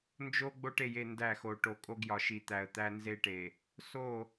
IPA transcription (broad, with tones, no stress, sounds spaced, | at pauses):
n d͡ʒ o˦ ɡ͡b o˦ ʈ e˨ j e˦˨ n d æ˦˨ x o˨ ʈ o˨ kʼ o˦ ɡ j ɒ˨ ʃ i˨ t̪ æ˨ ə̯ t̪ æ˦ n z e˦ ʈ e˨ | s o˦˨